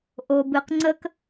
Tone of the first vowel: low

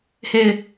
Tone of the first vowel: falling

